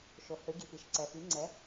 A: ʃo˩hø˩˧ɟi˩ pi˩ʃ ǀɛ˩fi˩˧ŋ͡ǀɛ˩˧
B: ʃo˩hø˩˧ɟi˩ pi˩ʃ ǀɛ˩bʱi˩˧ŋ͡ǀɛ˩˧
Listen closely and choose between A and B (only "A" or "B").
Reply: A